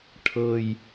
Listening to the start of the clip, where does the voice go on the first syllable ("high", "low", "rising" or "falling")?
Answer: low